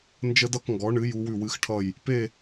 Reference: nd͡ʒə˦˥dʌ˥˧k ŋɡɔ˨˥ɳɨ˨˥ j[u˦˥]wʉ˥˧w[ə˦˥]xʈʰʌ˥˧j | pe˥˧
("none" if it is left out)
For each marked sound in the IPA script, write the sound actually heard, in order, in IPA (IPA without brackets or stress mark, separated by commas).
u˦˥, ɨ˦˥